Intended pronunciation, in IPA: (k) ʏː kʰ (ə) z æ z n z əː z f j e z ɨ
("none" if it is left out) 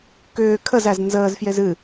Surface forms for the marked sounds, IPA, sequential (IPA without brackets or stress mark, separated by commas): k, ə